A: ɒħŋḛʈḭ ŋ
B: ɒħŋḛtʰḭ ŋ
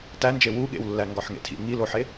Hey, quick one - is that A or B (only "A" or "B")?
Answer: B